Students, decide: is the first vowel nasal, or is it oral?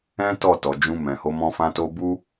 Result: nasal